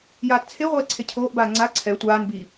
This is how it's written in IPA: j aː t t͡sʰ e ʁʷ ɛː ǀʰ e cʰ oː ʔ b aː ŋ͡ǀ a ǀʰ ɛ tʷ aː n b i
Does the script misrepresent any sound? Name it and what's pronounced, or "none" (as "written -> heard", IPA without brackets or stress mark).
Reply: none